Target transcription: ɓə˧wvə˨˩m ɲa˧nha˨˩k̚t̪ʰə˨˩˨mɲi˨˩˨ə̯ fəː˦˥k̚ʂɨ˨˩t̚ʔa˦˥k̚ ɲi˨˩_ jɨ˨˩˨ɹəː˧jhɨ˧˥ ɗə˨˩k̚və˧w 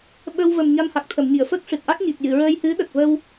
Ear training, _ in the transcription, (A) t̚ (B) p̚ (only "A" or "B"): A